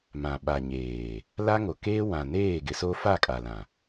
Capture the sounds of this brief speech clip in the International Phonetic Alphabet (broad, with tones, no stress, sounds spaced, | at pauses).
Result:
m ã˨ ɓ a˨ ɲ eː˨ | l a˦ ŋ o˨ k eː˦ w ã˨ n eː˦˨ ɡ ɪ˨ s o˦ f a˦˨ kʼ a˨ l ã˨